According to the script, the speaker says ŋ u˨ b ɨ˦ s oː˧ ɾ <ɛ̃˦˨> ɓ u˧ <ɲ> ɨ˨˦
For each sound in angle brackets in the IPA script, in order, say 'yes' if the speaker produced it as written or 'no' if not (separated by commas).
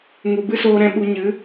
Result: yes, yes